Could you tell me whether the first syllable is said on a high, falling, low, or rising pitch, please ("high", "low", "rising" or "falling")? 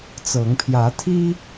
rising